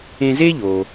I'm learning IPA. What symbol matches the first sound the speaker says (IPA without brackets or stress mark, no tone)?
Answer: ẽ